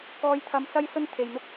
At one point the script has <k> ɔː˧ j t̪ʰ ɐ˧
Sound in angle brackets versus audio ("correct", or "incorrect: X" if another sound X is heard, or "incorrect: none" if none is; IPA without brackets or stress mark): correct